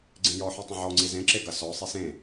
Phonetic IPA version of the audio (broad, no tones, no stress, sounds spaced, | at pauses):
ɡ͡ǀ ẽ j ɔ ħ u tˤ ɐ̃ ʕ ɔ ŋ͡ǀ i z ẽ ǁ e ɡ ɐ s ɔ sˤ i s ẽ